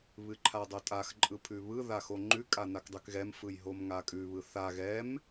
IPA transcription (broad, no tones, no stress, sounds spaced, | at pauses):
β ɨ ǃʰ a dˤ o tʼ a x ǃʼ ɯ pʰ ʉ β ɯ ð a x o ŋ͡ǃ ʉ kʼ a n a k dˤ ʉ k ɣ ɛ m f ɯ j ɦ o m ŋ a kʼ ʉ β ɯ θ a ɣ ɛ m